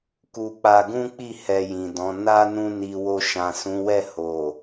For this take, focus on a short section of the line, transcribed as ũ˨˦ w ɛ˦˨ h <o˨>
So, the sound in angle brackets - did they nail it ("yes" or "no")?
yes